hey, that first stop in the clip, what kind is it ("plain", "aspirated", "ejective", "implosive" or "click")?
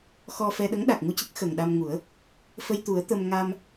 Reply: implosive